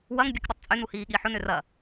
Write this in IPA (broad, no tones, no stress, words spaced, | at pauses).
wɐŋ bʲɛkɗʏtˤt͡sʼøn uhiːɠiːħʊn ʏrɐ